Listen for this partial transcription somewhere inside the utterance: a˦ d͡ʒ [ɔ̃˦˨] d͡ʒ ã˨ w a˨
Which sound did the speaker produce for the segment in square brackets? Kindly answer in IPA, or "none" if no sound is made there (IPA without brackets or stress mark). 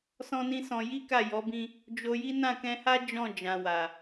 ɔ̃˦˨